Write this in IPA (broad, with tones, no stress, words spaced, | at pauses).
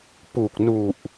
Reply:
pu˨˩k̚nu˨˩ʔ